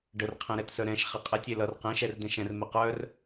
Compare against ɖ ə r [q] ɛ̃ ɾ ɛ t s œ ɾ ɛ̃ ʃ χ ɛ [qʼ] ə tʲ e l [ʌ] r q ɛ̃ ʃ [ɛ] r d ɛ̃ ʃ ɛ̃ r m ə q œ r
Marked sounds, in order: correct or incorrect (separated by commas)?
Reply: incorrect, correct, correct, correct